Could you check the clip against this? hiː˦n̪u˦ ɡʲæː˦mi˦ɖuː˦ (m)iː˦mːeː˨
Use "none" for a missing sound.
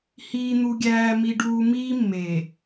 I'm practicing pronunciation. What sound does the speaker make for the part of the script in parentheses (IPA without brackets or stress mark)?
m